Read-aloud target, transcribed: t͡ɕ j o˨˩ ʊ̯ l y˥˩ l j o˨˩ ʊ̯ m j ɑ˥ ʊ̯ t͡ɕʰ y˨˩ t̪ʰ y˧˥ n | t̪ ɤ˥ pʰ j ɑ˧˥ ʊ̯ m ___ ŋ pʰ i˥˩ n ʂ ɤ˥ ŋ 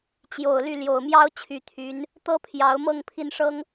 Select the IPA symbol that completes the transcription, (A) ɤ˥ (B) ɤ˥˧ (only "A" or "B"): B